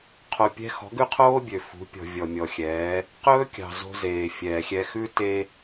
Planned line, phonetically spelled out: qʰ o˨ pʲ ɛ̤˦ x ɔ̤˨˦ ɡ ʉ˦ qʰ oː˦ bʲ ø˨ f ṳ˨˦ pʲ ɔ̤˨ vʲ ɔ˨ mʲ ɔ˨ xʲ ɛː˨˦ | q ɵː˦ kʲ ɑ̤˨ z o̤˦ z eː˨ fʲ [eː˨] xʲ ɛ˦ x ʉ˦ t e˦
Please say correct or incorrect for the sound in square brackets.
incorrect: ɛː˨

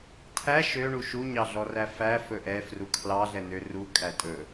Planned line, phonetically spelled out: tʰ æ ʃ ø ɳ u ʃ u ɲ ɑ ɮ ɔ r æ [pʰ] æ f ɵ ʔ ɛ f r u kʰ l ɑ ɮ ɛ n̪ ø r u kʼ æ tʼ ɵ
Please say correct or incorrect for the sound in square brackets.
incorrect: f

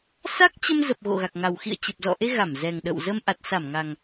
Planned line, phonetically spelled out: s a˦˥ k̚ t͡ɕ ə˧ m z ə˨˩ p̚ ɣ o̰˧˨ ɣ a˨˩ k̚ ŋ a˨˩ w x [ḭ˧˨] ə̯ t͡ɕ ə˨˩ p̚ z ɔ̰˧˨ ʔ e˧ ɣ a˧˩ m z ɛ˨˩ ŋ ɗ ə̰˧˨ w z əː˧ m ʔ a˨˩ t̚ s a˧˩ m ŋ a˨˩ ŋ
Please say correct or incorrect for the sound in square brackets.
correct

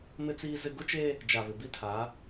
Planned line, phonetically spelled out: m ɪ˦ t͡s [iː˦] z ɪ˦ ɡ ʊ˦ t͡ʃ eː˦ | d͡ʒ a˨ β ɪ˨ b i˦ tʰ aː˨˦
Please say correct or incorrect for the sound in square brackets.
correct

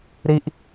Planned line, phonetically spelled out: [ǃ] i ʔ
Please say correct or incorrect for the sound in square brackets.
incorrect: ɾ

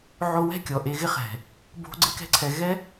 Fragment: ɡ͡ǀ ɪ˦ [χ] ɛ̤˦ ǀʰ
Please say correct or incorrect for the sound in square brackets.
incorrect: k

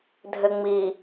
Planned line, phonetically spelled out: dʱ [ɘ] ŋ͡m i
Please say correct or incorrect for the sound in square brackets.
correct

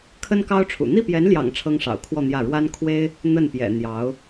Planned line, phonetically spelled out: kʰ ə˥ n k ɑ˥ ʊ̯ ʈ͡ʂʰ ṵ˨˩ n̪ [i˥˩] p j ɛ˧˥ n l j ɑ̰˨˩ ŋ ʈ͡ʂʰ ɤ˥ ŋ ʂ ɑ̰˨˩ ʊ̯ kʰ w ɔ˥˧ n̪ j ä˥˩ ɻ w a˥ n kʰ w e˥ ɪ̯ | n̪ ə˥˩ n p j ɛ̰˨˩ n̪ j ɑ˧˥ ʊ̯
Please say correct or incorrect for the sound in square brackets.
correct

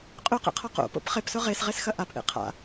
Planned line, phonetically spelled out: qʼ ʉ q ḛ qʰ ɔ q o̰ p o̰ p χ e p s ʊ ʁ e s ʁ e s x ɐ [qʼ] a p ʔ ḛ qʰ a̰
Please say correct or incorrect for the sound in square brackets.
incorrect: ʔ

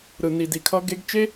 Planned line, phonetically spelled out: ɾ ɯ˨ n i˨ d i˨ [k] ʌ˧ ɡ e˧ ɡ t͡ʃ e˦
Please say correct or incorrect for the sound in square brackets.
incorrect: kʰ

